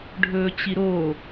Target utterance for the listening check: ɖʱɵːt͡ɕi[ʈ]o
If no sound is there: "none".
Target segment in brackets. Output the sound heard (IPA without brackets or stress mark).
ɾ